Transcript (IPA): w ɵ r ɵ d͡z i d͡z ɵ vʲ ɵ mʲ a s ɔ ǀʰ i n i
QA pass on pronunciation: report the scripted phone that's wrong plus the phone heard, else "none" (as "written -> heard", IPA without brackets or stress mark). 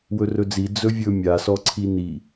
none